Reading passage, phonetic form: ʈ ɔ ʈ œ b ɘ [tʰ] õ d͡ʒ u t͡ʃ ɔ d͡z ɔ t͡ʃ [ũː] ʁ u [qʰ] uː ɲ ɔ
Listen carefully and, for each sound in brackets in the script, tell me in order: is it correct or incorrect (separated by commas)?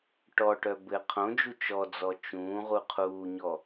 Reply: incorrect, correct, correct